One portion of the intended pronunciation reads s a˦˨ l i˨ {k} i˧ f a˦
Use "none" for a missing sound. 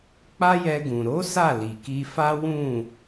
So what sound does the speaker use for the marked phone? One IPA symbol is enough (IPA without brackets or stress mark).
k